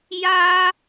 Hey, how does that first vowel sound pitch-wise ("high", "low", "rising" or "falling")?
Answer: high